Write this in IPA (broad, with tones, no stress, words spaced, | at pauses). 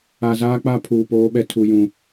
a˨zaː˦k͡pa˦ pʰuː˨poː˦ɓɛ˦ tʰu˦jũ˦